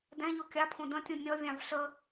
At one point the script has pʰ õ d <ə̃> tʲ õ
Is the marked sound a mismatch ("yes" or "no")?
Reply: no